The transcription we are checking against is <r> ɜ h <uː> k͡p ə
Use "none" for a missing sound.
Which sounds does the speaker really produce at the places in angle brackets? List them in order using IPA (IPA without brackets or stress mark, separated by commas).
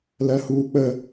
l, uː